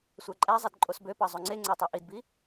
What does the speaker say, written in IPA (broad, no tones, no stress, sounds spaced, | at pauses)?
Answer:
sʷ æ ǃʼ æ zˤ e d ǃʼ o s b ø p ɑ zˤ o ŋ͡ǀ e ŋ͡ǀ æ tˤ o ʔ i d b i